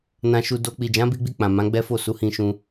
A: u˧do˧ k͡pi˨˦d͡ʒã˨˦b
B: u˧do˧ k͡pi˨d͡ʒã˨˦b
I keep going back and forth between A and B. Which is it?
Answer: B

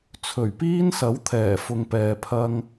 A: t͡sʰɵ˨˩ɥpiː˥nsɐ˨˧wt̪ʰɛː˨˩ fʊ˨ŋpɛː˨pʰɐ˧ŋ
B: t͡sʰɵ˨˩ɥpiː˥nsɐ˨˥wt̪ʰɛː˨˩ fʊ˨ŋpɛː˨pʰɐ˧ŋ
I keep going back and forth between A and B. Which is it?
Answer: B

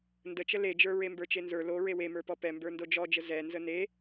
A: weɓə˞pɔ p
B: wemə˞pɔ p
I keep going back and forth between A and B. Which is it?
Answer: B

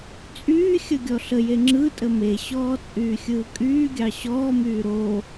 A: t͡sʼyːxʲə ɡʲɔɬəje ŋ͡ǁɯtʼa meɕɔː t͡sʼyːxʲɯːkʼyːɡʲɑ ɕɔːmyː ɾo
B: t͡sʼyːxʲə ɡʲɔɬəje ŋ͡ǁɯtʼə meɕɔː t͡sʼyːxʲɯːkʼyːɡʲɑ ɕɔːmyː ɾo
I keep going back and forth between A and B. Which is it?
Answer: B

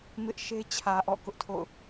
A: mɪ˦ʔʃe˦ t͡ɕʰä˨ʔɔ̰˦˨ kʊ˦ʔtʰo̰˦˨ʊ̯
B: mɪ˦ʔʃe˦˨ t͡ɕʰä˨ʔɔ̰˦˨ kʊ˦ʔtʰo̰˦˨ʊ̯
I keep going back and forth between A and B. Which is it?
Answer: A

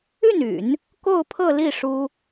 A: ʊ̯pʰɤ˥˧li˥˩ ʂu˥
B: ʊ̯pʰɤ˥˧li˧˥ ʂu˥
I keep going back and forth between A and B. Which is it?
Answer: A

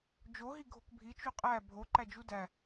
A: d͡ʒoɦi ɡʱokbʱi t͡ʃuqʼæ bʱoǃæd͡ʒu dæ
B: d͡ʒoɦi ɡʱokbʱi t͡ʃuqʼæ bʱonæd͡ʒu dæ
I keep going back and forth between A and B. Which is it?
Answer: A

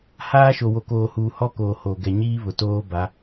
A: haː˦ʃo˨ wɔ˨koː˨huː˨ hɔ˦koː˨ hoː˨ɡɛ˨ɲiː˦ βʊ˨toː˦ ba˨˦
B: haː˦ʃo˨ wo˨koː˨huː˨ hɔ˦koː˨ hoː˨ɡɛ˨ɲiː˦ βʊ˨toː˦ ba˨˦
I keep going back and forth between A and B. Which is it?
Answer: B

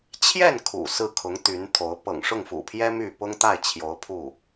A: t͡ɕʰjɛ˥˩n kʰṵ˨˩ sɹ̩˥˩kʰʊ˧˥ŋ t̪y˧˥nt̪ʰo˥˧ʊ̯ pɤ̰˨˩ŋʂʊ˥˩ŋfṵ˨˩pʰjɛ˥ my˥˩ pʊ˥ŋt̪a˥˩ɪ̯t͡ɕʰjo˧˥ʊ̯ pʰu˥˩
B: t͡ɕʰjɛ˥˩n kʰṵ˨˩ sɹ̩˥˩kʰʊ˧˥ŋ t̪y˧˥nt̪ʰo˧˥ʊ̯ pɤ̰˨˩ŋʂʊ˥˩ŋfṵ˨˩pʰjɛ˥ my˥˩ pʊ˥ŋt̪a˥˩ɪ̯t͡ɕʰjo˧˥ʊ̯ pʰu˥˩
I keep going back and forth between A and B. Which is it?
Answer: B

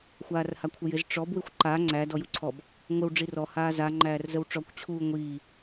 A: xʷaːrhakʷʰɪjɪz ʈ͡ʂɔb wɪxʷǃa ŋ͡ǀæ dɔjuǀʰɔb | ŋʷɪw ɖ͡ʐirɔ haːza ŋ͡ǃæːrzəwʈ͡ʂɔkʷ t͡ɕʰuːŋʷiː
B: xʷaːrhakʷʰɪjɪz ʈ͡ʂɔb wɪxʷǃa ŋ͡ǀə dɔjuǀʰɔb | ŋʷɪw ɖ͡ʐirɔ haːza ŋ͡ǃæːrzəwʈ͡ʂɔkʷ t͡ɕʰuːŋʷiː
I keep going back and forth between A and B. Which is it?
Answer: A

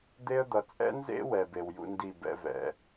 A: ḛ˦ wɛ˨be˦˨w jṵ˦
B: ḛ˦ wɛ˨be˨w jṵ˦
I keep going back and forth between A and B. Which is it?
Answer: B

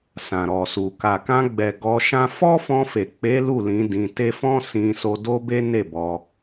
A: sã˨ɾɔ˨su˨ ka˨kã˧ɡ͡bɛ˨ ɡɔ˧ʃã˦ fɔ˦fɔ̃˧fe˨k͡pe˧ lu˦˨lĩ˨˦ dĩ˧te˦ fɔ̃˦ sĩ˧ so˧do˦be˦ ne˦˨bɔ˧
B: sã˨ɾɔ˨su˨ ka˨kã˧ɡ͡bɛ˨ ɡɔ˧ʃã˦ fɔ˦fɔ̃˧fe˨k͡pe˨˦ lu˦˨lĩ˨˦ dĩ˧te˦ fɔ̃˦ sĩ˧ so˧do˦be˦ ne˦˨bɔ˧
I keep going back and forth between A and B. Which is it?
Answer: B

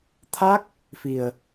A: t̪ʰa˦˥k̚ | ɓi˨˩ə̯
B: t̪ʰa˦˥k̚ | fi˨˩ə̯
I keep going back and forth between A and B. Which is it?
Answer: B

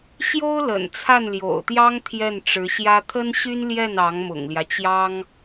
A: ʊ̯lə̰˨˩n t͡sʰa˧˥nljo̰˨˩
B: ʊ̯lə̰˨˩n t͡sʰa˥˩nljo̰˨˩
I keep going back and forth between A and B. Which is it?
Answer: B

